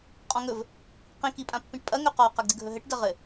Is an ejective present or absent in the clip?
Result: present